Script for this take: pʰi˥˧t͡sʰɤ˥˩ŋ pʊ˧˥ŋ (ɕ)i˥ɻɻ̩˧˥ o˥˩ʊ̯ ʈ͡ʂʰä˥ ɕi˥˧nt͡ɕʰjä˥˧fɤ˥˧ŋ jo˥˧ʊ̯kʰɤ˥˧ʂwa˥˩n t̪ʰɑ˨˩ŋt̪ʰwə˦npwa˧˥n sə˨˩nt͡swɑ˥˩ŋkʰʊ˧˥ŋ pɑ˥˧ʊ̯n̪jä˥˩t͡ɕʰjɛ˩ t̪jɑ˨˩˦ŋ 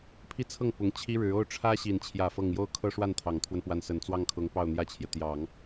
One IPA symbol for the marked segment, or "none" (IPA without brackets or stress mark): t͡ɕʰ